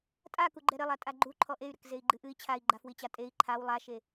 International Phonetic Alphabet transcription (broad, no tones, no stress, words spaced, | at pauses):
tʼa kuɡ͡ǃɛɾɘlˠa tʼaɡ͡ǃuǃʰɔ ʔey̯ɾɘk zei̯ɡ͡ǃɨʔɨi̯ t͡ɕʰai̯ɡ͡ǃafwit͡ɕa tʼei̯ ǃʰaw lˠaʃe